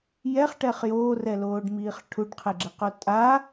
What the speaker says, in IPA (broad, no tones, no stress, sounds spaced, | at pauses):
j ɛ χ ʈ ɛ χ j oː r ɛ l oː ɖ m iː χ ʈʰ u ɖ qʰ e ɡ͡ǁ ɪ q o tʼ a